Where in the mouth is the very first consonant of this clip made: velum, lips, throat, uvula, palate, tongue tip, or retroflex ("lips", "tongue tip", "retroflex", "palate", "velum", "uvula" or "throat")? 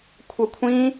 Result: velum